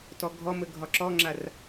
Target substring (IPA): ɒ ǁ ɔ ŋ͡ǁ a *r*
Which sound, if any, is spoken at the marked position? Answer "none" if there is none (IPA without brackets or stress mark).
r